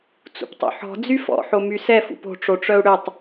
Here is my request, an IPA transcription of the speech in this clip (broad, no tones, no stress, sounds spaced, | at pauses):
t͡s ṵ p tˤ o̰ ħ ɔ̤ d͡z y f ɔ̰ ħ o m y s ɛ f ṵ p o̤ ʈ͡ʂ o ʈ͡ʂ œ u̯ ɽ ø tˤ